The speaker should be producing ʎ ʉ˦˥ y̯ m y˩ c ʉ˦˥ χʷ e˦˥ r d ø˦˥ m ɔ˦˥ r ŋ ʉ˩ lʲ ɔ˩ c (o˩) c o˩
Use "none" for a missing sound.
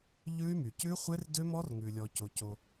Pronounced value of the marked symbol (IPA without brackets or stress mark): o˩